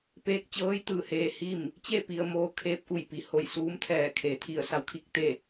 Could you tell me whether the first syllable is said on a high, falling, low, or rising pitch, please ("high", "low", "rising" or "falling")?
rising